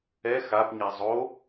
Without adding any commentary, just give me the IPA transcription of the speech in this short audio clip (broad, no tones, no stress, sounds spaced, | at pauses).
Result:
ɛ x a p ɲ ɛ zˤ o